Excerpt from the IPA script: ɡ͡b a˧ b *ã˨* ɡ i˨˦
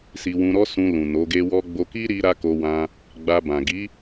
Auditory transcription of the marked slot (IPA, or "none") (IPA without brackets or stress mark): ã˨